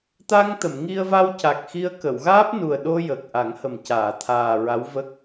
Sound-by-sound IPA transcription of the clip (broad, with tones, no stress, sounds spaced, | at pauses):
t̪ a˧ ŋ t̪ ə˨˩˨ m ŋ i˧ ə̯ v a˧ w c a˨˩ k̚ x i˧ ə̯ k ə˨˩˨ w ɣ aː˦˥ p̚ n u˨˩ ə̯ ɗ o˧ j ə˨˩ k̚ ʔ a˨˩˦ ŋ h ə˨˩ m c aː˨˩˨ t̪ʰ aː˨˩ ɹ a˧˥ w v ə˦˥ k̚